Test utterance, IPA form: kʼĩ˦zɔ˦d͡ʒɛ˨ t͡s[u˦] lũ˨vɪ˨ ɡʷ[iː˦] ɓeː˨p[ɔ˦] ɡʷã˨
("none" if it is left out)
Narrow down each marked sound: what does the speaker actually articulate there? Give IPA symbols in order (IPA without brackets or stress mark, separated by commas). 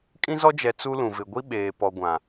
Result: u˦, i˦, ɔ˨